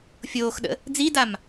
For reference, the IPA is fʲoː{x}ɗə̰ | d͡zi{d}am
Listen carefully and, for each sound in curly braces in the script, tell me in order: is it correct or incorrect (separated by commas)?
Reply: correct, correct